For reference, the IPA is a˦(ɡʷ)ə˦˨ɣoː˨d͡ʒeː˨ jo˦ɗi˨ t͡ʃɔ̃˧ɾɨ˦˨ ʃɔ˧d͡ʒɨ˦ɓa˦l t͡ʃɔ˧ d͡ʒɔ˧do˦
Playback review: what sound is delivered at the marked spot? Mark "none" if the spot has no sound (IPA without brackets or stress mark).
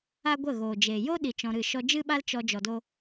ɡʷ